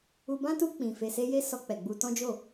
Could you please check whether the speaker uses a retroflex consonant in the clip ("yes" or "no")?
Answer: no